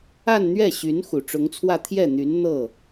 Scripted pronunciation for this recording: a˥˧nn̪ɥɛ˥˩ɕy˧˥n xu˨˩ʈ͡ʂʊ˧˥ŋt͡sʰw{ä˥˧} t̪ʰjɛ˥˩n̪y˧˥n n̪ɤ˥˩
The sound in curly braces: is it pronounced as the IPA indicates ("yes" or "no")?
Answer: yes